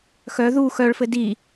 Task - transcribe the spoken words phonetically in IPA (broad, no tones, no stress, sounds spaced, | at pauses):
x œ ð u x œ ɭ f ɘ d i